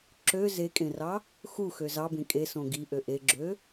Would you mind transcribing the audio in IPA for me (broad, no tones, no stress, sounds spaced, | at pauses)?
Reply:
ǁ ø z e kʼ ẽ r ɑ | x u x ø z ɑ b ẽ kʼ e s õ ɡ i ʔ ø ʔ e ɡ͡ǁ ø